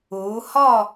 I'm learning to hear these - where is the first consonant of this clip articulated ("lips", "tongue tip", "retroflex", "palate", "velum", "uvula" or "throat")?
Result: throat